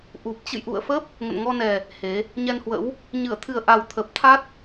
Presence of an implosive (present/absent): absent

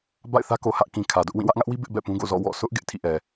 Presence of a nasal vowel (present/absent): present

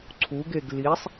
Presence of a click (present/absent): present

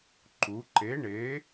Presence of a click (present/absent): present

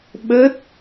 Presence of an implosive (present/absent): present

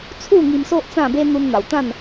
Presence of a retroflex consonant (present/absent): absent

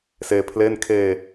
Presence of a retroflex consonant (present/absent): absent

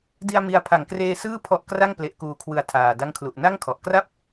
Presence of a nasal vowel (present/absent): absent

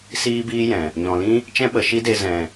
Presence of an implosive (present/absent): present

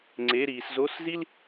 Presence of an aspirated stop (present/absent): absent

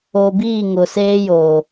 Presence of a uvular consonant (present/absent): absent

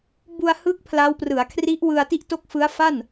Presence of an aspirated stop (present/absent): present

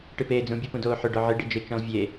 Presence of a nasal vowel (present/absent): present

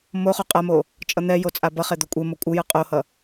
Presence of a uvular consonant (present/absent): present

